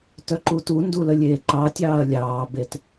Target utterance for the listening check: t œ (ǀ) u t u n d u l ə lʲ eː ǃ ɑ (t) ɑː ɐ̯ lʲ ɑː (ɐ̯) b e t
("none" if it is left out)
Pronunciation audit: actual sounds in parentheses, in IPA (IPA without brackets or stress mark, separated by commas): ǃ, tʲ, none